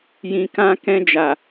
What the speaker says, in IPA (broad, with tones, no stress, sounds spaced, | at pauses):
j ĩ˨ k ã˧ k ɛ̃˧ d͡ʒ a˨